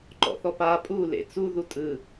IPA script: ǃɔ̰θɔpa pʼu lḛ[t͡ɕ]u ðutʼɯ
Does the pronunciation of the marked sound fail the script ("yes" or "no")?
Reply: yes